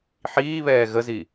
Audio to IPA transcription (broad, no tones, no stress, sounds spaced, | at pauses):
ħ iː β ɛː ɣ ə z i